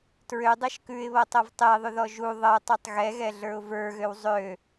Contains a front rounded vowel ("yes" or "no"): yes